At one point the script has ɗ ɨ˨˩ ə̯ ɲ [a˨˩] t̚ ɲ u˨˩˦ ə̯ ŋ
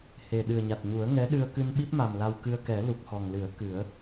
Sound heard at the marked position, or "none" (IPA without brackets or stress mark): a˨˩